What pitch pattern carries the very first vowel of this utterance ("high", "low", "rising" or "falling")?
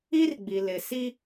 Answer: high